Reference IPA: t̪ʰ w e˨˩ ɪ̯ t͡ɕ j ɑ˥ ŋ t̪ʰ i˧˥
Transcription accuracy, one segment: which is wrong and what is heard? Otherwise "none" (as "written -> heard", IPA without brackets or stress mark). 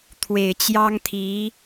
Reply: none